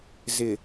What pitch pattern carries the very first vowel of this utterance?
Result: low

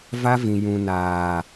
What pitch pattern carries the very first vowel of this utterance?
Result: high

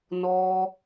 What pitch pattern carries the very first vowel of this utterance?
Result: high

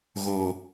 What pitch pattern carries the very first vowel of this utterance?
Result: low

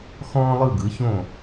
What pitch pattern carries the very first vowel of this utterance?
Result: high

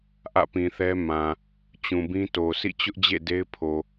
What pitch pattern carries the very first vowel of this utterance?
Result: falling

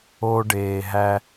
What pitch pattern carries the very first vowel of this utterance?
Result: low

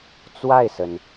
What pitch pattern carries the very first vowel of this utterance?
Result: falling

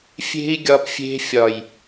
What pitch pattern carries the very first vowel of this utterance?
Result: high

